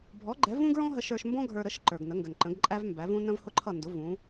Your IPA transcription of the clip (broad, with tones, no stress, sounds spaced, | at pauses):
bʱ ɔ˩˥ ɡ͡ǃ ɛ˩˥ v ũ˥ ɡ ɹ ɔ̃˥ ɦ ə˧ ʃ ə˞˧ ʃ m b ɔ̃˥ ɡʱ ə˞˧ ɾ ə˩˥ ʃ ǃ ə˞˩ ɡ n ə˩˥ ŋ ɡ ə˩ n ǃ ə̃˩˥ ɡ ǃʼ æ˥ v m b æ˩˥ v ũ˥ n ə̃˥ v h ʊ˥ ǃʰ ʌ˥˩ n d ʊ˩˥ v ũ˩˥